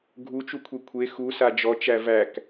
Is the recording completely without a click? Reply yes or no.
yes